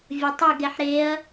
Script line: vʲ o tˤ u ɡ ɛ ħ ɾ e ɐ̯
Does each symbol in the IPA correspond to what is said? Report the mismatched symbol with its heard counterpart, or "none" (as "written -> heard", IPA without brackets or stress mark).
none